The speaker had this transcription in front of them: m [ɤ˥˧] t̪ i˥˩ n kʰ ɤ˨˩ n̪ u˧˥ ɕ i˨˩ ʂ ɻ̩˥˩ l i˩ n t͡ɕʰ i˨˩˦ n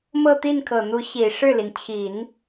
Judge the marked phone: correct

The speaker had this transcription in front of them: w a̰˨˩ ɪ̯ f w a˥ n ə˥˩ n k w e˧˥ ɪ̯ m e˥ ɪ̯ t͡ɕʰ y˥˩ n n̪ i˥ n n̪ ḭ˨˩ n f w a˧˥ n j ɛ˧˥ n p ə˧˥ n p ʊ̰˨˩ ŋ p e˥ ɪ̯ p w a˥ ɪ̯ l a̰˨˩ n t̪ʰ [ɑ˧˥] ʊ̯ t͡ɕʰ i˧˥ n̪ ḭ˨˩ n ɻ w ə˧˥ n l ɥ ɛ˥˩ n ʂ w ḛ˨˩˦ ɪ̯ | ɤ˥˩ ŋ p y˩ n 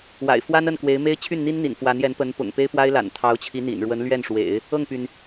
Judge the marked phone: correct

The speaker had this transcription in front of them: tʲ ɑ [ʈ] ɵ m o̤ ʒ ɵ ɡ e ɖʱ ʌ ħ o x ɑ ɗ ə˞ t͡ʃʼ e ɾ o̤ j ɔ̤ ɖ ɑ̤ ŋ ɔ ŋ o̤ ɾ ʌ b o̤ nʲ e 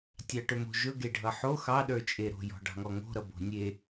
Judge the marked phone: correct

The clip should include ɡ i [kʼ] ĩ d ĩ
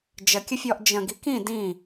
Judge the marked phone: incorrect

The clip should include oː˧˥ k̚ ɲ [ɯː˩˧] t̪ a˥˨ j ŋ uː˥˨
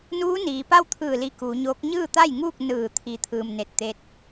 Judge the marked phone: incorrect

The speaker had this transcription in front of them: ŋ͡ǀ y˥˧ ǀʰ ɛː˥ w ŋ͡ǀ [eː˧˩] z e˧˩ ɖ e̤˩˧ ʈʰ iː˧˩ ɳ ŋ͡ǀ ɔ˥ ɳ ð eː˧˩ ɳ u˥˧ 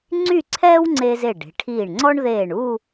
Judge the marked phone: incorrect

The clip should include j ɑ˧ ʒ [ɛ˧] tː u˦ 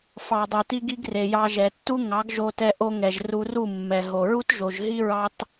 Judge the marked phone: incorrect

